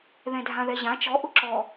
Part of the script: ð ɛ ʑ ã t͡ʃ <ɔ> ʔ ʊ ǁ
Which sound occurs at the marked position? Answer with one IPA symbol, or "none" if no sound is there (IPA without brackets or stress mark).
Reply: ɔ